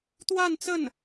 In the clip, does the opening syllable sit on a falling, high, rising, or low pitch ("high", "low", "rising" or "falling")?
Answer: falling